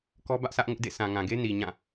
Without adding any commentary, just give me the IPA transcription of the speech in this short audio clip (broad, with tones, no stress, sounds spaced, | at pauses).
k ɔ˦ b ä˦ ʔ sʰ ä˦ ʔ ŋ ʊ˦ ʔ d ḛ˦˨ sʰ ã˨ ŋ ã˨ ɡ e˦ n i˨ ɲ ã˦˨